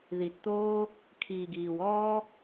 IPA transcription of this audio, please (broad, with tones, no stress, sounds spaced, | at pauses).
ð i˨ t t̪ oː˧ | kʰ iː˨ ɡ iː˨ w ɔː˦